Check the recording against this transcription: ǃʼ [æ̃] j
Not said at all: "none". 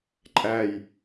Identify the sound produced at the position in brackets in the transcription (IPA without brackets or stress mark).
æ